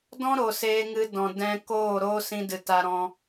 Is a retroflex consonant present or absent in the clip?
absent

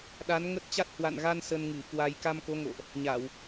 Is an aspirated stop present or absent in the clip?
absent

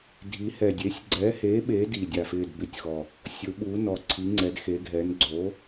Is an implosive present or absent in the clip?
present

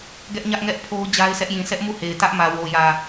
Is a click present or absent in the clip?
absent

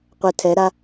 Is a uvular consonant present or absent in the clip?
present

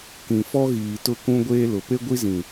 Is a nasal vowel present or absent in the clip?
present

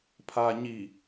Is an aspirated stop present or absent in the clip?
present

